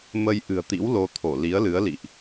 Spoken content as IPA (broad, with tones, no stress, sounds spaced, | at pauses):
m ə˧ j ʔ ɨ̤˨˩ ə̯ t̪ ḭ˧˥ w l o˧ t̪ʰ o˧˩ l i˨˦ ə̯ l ɨ˨˦ ə̯ l ḭ˧˨ ʔ